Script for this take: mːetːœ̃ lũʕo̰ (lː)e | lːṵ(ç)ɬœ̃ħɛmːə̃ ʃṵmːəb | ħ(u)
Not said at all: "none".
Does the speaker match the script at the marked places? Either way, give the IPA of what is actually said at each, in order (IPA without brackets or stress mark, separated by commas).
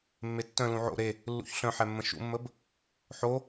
ɾ, ç, o